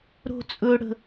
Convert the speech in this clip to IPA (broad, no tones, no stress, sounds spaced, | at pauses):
ɾ o̤ t͡sʼ ɵ ɽ ə̤